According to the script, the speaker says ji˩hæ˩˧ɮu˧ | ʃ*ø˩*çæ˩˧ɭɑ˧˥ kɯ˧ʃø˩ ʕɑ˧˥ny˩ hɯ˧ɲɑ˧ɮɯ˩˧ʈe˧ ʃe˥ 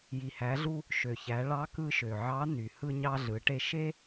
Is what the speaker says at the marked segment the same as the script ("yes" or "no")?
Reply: yes